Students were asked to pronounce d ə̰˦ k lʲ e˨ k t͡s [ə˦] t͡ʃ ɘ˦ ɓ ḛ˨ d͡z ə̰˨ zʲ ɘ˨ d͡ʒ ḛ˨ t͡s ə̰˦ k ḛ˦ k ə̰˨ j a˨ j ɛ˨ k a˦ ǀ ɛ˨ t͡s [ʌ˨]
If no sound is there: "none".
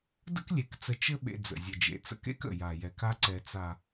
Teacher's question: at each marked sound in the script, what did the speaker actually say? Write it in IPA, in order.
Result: ə˨, a˨

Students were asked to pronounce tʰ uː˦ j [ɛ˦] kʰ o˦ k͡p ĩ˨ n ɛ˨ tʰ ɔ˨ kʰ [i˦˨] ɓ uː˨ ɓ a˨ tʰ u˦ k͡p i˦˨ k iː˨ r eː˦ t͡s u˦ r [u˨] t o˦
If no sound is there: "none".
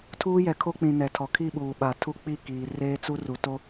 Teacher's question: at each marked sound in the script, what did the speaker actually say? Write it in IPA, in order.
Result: ɛ˨, i˦˨, u˨

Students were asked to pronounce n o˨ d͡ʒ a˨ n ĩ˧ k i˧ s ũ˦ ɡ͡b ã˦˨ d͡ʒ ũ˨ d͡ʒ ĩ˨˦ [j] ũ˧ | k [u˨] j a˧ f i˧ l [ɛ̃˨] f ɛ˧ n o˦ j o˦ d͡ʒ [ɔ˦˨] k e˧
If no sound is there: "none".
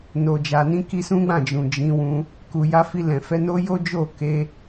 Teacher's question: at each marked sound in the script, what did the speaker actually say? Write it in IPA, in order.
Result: w, u˨, ɛ̃˨, o˦˨

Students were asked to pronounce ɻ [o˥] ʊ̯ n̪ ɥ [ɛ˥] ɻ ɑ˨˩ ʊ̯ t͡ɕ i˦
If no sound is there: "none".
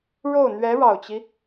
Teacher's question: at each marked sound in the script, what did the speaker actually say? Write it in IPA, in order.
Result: o˥˩, ɛ˧˥

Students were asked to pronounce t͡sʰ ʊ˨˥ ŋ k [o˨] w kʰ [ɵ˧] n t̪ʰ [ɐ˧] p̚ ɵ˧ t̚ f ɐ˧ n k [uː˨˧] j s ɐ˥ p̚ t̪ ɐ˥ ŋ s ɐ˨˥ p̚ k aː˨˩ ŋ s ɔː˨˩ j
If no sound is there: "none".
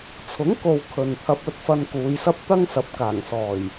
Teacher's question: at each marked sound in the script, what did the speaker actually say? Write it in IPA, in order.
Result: o˨, ɵ˨, ɐ˧, uː˨˧

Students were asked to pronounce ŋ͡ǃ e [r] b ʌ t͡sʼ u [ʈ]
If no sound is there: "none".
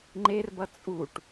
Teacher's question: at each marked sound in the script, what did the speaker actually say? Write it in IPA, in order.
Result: r, ʈ

